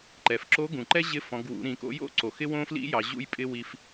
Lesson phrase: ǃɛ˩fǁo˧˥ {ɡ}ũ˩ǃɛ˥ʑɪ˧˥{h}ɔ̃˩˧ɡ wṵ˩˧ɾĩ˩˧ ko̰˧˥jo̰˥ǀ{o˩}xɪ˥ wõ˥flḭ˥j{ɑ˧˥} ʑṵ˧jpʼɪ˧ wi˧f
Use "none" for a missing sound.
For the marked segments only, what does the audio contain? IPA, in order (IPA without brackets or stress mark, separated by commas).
ɡ, f, o˩, ɑ˩˧